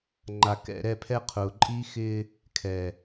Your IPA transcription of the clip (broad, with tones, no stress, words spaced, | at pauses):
ŋ͡ǃa˨kɛ̰˦˨ɾɛ˦˨pʰɛ˦ qʰʊː˨ǃʼiː˦xɪː˦ | kʰɛ˨